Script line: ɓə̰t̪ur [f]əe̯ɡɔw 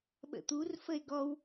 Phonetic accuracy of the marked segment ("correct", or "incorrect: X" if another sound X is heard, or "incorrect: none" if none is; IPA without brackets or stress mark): correct